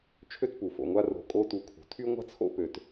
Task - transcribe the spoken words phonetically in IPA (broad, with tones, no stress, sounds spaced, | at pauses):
t͡ʃʰ ø˥ t p u˩ f o̰˨ ŋʷ a˦ r o̤˨ kʼ o˦ t u˨ kʰ ṳ˩ tʰ y˥ ŋʷ a̤˥ t͡sʰ o̰˥ p ø˨ t